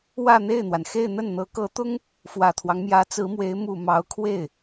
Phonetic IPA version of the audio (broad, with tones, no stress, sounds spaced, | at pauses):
w ä˥˧ n̪ e˥˩ ɪ̯ n̪ w a˩ n x e˥˧ ɪ̯ n̪ ə˥˩ n n̪ ɤ˧˥ k ɤ˧˥ t̪ ʊ˥ ŋ | f w ä˨˩ t̪ʰ w ɑ˦ ŋ m j ä˧˥ t͡s ɹ̩˧˥ m w e˧˥ ɪ̯ m u˨˩ m ɑ˧˥ ʊ̯ kʰ w e˥˩ ɪ̯